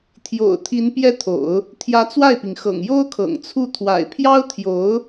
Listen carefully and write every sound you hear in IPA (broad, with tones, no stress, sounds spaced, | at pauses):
t̪ʰ j o̰˨˩ ʊ̯ t̪ʰ i˧˥ n p j ɛ˥ t̪ʰ o̰˨˩˦ ʊ̯ | t̪ʰ j ä˧˥ t͡s w a˥˩ ɪ̯ p i˩ ŋ x ɤ̰˨˩ ŋ j o˥ ʊ̯ kʰ ɤ̰˨˩ ŋ t͡sʰ u˥˩ t̪ʰ w a̰˨˩ ɪ̯ pʰ j ɑ˥ ʊ̯ t̪ʰ j o˧˥ ʊ̯